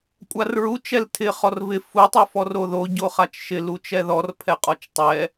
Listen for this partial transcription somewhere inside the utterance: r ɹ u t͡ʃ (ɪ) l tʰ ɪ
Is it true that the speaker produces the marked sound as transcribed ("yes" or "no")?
no